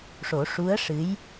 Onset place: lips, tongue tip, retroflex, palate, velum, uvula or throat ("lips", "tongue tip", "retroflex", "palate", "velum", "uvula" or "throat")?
retroflex